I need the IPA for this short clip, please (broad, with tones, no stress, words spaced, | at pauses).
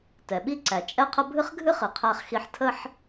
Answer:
tɛ˩ɓi˥ǀæ˩ t͡ʃʼɛ˥qʰə˥ bʱɨ˥χɡʱɨ˥χɨ˩ qʰæ˥χxi˥ħ tʰə˥ħ